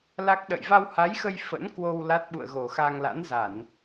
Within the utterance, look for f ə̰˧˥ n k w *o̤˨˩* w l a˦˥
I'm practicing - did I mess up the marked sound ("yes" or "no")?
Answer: yes